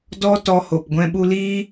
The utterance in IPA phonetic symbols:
d ɔ˦ t ɔ˧ h o˨ p ɡʷ ɛ̃˧ ɓ u˧ l iː˦

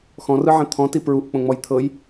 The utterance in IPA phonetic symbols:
x ɔ̃ r ɯ ʕ ɛ̃ t̪ʰ ɔ̃ t i p ɹ u ʔ k͡p õ ŋ͡m ɔ j t̪ʰ ɤ j

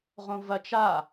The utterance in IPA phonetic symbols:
ʁ õ v ɐ t͡ʃ a

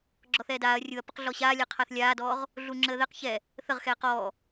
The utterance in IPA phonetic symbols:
ɡ͡ǁ ɔ θ ɛː d aː ɐ̯ rʲ u ɐ̯ p ə q ɮ ɔ ɕ aː lʲ a qʰ a θ lʲ aː d ɔː ʁ | ɮ u ŋ͡ǁ əː ð ɛ q ç ɛ | θ ə ʁ x ɛː q ɔː

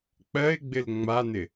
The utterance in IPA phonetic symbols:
k͡p ɜ ɪ̯ ɡ͡b ɪ l ŋ͡m a n ɪ

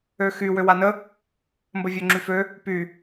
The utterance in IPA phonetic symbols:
ø x y w ø w a n ə | m b ə vʲ ø ŋ͡ǁ y f ø | p y

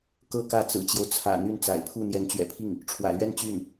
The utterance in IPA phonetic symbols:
k ɤ˥˧ k ä˥˩ t͡s ɹ̩˨˩ t͡ɕ j o˦ ʊ̯ t͡sʰ ä̰˨˩ n̪ y˥˩ n t͡s a̰˨˩ ɪ̯ pʰ u˥˩ n̪ j ɛ˧˥ n t͡ɕ ɥ ɛ̰˨˩ pʰ i˥˩ ŋ | ʈ͡ʂʰ w ä̰˨˩ l ɥ ɛ˥˧ n t͡ɕ y˥˩ n

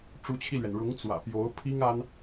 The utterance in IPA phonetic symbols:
ʈ͡ʂ u˧˥ t͡ɕʰ i˧ l ɥ ɛ˩ n ɻ ʊ˧˥ ŋ t͡s w ä̰˨˩ p j o˧˥ ʊ̯ pʰ i˥ ŋ a˥ n

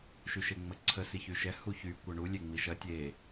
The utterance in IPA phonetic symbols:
ʃ y ʃ e ŋ͡m ə ǀʰ ə s i ç y ʃ ɛ h u ç y kʷ ɐ ɳ u lʲ e ŋ͡m i ʃ ɐ tʲ e

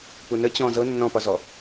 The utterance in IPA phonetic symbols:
p u n ə t͡ɕ ɔ̃ z ɤ nː ɔ̃ p ɒ z ɔ

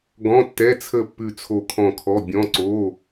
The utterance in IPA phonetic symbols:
ɡ ɔ̃˧˥˧ tː ɛ˧˥˧ t͡sʰ ə˦˨ pː ʉ˦˨ t͡sʰ o˦˨ kʰ ɔ̃˦˨ kʰ ɔ˧˥˧ bʲ ɔ̃˧˥˧ ǀ o˧˥˧

